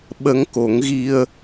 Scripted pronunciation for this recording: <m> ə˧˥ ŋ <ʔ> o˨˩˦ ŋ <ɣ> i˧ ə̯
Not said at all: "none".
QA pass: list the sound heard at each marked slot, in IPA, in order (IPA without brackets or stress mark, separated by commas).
ɓ, k, ɣ